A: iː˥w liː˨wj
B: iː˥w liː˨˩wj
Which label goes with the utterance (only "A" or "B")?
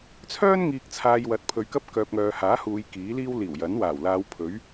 B